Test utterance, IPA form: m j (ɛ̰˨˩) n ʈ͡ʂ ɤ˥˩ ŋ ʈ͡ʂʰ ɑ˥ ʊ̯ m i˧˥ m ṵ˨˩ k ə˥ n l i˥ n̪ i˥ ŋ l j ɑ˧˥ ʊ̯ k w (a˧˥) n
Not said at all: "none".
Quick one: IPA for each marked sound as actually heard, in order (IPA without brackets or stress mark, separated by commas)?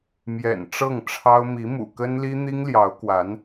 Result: ɛ̰˨˩, a˧˥